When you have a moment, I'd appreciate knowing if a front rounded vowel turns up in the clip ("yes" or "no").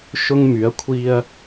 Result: yes